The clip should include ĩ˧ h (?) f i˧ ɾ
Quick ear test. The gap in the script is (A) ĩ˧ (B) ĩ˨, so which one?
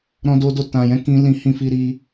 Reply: A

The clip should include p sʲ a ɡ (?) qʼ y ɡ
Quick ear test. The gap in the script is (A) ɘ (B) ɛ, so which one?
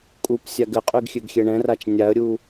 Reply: A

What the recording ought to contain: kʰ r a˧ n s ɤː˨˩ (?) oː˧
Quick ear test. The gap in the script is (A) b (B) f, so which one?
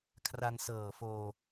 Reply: B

